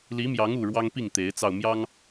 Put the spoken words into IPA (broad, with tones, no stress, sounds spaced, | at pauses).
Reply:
l i˨˦ m j ɑ˨˦ ŋ u˨˩ ɻ w ɑ˦ ŋ p i˥˨ ŋ t̪ e˨˦ ɪ̯ t͡s ɑ˧ ʊ̯ m j ɑ˦ ŋ